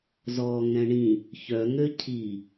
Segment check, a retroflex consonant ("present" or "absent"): present